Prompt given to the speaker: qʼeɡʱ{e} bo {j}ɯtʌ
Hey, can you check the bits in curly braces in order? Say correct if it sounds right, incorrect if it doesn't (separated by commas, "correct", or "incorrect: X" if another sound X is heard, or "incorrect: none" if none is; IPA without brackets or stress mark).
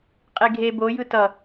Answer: correct, correct